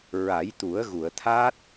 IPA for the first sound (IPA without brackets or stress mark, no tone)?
ɹ